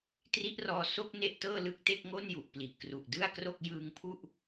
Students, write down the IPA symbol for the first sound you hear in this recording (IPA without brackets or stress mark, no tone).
t